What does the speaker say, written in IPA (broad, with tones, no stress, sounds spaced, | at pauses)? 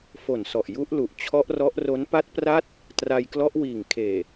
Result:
f o˨˩ n s ɔ˨˩ ʔ j u˦˥ ʔ l u˨˩ ʔ t͡ɕʰ ɔ˦˥ ʔ r ɔ˦˥ ʔ r o˦˥ n p a˦˥ t̚ p r a˦˥ t̚ | t r a˧ j k l ɔ˦˥ ʔ w iː˨˩ ŋ kʰ eː˨˩